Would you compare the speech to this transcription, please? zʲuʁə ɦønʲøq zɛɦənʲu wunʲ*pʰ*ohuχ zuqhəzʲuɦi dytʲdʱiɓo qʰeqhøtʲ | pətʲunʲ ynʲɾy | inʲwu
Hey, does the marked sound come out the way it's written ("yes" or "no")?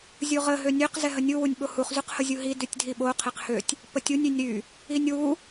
no